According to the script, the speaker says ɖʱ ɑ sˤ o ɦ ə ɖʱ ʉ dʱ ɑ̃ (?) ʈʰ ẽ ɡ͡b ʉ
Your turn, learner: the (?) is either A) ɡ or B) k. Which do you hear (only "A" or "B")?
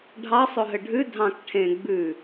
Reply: B